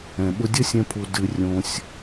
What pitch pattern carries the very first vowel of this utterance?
low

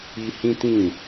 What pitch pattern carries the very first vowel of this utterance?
high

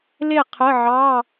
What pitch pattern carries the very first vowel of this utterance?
falling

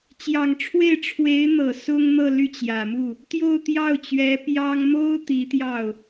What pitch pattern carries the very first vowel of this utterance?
low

